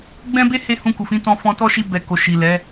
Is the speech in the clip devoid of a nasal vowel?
no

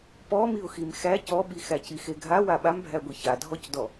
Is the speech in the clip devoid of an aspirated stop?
yes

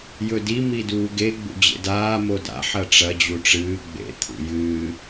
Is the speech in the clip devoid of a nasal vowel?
yes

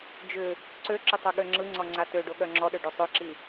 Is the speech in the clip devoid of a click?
no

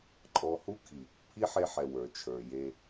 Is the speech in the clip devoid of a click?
no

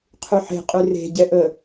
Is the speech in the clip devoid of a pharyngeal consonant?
no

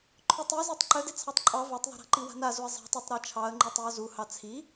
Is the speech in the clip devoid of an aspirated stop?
no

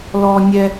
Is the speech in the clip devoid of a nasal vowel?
yes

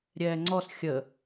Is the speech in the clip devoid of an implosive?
yes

